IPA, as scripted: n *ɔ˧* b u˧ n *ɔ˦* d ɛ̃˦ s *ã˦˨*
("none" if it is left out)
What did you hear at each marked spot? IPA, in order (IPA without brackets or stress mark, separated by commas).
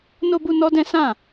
o˧, ɔ˦, ã˦˨